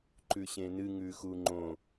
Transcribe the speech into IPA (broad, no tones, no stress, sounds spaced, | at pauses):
ǃ ʉ ɕ ẽ n ɨ ŋ ʉ x u ŋ͡ǃ õ